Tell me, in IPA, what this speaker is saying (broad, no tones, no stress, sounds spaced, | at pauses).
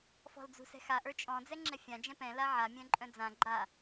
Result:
f ɔ̤ l d͡z ṳ s ɛ̤ x a ʔ ə˞ t͡ʃʼ ɔ̃ d͡z ɛ ŋ͡ǁ ɛ fʲ ã d͡ʒ ɛ̃ p ɛ̃ l a ʕ a mʲ œ̃ ǃʼ œ̃ d͡z ã ɡ͡ǃ a